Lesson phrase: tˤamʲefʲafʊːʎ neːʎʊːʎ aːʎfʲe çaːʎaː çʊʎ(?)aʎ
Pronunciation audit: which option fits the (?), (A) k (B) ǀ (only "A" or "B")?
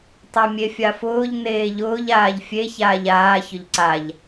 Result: B